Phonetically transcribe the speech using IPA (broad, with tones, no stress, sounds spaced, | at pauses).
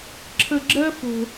ǁʰ ə˨ ɡ͡ǁ ɜ˧ f o̤˨